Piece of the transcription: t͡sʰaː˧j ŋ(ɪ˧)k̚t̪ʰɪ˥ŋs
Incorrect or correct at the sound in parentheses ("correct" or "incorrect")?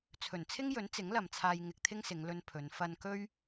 correct